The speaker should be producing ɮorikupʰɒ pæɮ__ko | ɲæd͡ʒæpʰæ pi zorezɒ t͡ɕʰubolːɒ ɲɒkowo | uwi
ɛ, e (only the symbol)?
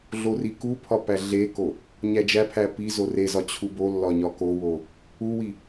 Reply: e